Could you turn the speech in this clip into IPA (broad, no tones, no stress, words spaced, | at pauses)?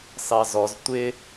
sɑzɔz tʷɪ